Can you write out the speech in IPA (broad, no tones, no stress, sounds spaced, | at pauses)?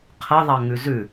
qʰ ə ðˤ ɑ ŋ ʉ z ʉ